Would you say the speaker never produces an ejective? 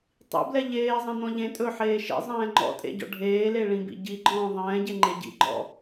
no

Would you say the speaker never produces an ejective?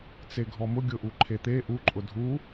no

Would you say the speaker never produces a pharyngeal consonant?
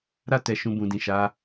yes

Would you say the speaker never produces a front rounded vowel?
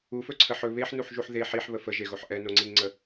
yes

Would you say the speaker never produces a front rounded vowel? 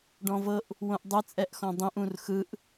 yes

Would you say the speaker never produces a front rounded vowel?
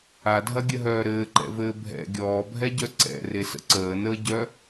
no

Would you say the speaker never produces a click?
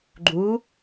no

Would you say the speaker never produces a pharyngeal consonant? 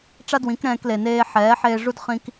no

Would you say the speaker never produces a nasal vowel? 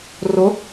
yes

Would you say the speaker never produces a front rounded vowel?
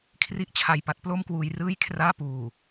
yes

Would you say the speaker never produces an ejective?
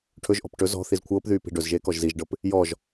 yes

